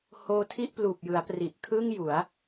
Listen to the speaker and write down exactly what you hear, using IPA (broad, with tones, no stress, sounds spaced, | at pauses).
h oː˦˥ tʰ i˥˩ ʔ p l uː˨˩ p̚ j ɯ˩˦ a̯ p r i˨˩ ʔ kʰ ɯː˥˩ ŋ j u˩˦ a̯